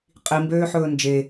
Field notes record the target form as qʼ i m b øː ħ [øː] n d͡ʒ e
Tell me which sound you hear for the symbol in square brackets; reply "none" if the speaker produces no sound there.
ɵː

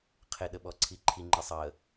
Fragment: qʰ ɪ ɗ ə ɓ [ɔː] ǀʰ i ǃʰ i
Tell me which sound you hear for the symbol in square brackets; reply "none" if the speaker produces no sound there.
ɔ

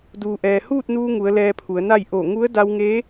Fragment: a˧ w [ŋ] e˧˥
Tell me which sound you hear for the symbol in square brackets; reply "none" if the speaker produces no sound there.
ŋ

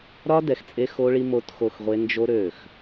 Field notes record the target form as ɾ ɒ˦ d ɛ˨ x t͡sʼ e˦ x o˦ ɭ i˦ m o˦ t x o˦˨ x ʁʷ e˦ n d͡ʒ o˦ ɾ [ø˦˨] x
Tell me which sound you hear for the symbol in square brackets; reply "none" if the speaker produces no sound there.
ø˦˨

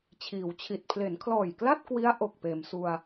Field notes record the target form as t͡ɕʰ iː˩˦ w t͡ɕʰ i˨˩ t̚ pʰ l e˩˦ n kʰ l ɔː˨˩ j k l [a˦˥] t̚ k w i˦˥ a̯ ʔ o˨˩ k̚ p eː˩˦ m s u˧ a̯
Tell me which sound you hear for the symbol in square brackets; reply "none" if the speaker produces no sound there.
a˥˩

